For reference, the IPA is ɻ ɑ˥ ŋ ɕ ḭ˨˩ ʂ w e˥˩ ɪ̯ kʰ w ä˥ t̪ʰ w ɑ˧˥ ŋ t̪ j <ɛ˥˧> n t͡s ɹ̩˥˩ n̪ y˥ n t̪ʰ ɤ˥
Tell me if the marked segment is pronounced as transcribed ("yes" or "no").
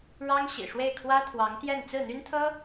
yes